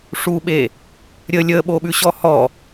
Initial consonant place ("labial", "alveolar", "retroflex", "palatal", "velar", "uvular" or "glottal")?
retroflex